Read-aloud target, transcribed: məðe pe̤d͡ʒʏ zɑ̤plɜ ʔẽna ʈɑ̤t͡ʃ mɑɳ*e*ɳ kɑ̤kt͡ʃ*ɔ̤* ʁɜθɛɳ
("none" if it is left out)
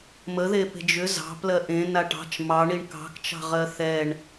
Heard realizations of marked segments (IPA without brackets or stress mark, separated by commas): i, ɑ̤